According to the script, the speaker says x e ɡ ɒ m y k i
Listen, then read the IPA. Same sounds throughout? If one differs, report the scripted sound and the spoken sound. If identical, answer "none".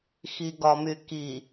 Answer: e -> i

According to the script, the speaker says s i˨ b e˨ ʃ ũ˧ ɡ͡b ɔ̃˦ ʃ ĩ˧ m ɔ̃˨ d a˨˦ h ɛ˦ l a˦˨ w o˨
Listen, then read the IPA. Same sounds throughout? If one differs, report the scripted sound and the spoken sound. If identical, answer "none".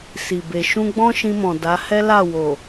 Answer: none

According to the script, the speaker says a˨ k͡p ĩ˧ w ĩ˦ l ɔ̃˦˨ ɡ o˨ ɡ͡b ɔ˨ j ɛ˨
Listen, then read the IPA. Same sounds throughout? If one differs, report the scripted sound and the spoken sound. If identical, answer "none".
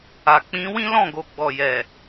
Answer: none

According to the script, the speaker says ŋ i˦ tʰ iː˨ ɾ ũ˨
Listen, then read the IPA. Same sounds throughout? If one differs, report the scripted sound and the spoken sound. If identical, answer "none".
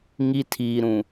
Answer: none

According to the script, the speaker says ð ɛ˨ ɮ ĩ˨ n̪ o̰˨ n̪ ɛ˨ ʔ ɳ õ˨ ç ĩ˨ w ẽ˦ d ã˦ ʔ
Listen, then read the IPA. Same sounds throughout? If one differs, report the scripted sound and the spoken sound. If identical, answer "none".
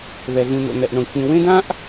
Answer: none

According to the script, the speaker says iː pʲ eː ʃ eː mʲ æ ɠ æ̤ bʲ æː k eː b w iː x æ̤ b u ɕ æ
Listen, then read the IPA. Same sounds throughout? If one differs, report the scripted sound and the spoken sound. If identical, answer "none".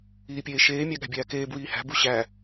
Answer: x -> h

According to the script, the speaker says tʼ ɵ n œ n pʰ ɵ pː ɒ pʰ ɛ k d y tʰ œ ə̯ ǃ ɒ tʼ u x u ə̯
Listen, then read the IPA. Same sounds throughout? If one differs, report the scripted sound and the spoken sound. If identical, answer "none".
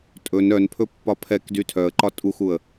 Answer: none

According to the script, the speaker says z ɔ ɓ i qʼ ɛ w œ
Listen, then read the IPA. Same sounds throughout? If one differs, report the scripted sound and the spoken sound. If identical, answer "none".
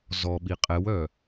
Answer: none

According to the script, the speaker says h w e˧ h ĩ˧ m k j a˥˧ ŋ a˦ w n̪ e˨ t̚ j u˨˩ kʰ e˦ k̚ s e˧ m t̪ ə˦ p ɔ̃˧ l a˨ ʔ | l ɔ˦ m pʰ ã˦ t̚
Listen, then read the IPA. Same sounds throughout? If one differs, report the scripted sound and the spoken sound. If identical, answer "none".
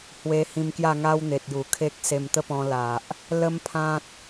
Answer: ɔ˦ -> ə˦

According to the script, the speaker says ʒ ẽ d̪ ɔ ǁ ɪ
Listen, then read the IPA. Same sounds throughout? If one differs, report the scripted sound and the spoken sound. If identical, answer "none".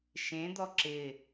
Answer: ʒ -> ʃ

